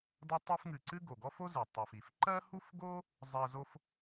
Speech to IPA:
dʌ˥ tˤi˦fŋɨ˨ǀɨ˥ɡo˩ ɡɔ˥fo˥zɨ˩ tˤo˨fi˨f ǃɜ˥hu˥fɡo˥ | zˤɜ˦zo˥f

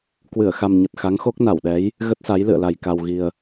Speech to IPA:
kwɨ˧˩ə̯xa˨˩mɲə˨˩t̚ xa˨˦ŋxo˦˥k̚na˧˩wɗɛ˨˦j | ɣə˦˥t̚sa˨˦j lɨ̰˧˨ə̯la˨˩j ka˨˩wɣi˨˩ə̯

